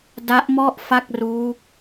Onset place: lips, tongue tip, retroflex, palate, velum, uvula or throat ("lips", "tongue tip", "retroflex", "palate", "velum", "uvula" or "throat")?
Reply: tongue tip